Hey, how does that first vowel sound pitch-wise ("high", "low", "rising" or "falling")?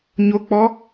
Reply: high